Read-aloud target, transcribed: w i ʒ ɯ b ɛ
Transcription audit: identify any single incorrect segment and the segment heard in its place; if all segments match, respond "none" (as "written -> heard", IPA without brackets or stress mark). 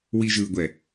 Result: b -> ɡʷ